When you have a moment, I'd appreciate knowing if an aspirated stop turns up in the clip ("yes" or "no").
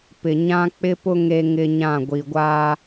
no